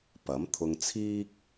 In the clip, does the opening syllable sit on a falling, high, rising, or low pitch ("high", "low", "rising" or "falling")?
rising